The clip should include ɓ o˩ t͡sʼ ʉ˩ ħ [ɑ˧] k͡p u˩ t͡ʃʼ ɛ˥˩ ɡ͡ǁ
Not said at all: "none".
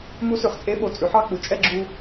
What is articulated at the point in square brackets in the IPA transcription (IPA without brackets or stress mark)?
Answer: ɑ˧